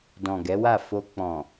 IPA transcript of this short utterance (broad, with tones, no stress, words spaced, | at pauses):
dɔ̃˨ɡɛ˨˦wa˦˨ fo˧ k͡pɔ̃˨